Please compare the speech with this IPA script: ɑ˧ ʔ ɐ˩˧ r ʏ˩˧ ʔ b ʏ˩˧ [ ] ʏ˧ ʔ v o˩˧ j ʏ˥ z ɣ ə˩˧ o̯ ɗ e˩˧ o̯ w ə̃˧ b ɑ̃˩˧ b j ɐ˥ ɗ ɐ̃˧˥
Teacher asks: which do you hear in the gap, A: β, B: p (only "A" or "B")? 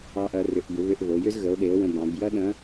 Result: A